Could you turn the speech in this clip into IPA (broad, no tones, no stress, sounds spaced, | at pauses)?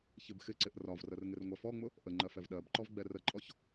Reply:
ç ɪ b x ɪ ǀ ɪ ʔ r ɒ v r ə r ŋ ɪ r ŋʷ ɛ f ɔ ŋ͡m ʊ | ʔ ə ŋ͡ǃ ɜ f ɛ v ɗ ɜ b ǃ ɔ v ɡ͡b ɛ r ə ǃʼ ɔ ç